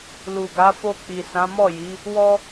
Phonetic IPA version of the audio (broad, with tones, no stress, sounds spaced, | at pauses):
l u˨ ɡ a˨˦ f o˧ k͡p i˨ s ã˨˦ m ɔ˦˨ j i˨˦ | w ɔ˦